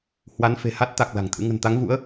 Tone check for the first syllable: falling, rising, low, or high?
rising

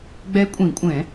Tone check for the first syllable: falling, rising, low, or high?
rising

